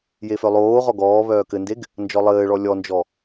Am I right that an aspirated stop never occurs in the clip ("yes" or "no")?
yes